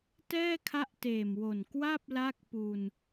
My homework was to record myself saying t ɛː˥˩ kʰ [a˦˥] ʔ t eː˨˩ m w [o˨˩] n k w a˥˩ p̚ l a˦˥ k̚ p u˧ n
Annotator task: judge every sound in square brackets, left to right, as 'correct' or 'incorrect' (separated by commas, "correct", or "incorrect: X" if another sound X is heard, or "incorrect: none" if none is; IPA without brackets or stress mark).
correct, correct